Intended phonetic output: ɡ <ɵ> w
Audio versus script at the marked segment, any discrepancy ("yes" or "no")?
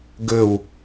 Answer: no